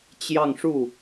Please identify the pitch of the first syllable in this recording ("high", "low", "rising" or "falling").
falling